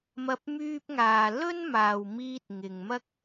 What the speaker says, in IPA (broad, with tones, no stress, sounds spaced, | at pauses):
m ɐ˧ p̚ m yː˧ p̚ ŋ aː˨ l ɵ˥ n m aː˨ w m iː˧ t̚ ŋ ɪ˨ ŋ m ɐ˥ k̚